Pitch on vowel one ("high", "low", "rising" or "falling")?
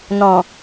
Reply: low